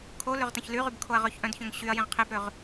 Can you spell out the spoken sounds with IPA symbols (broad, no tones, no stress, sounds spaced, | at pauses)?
kʰ o l ø ʁ t ɐ̃ ç l y ʁ y b kʰ o ɐ̯ ʁ œ ç ʔ œ̃ d ç œ̃ ŋ ɕ y ɐ̯ j ẽ ʁ qʰ e b ɾ ø ʁ